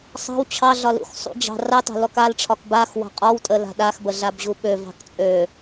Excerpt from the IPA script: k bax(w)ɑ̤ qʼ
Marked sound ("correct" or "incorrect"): correct